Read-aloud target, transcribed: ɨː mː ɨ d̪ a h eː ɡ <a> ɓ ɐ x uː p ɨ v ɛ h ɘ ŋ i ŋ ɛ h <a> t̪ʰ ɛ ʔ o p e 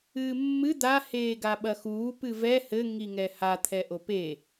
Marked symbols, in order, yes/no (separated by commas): yes, yes